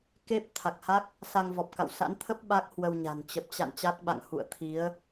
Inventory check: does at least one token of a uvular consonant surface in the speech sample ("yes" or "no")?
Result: no